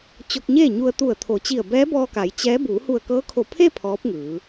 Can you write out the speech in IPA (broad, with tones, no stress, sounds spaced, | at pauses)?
t͡ɕ o˧ k̚ ɲ eː˥˨ ɲ u˧ ə̯ t̪ u˧˩ ə̯ t̪ʰ o˩˧ t͡ɕ i˧˩ ə̯ b ɛː˧˥ b ɔː˧ k a˩˧ j t͡ɕ ɛː˧˥ b uː˩˧ h u˧˩ ə̯ k ɤː˧˥ kʰ o˧˩ pʰ e˥˨ pʰ ɔː˧˥ p̚ ŋ ɯː˩˧